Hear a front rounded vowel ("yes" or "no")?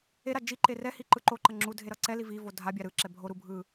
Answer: no